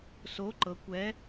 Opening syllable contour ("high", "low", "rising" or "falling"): rising